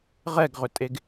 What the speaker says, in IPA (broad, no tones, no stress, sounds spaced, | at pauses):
ʁ ɛ ɡ ʁ ʏ tʼ e ɡ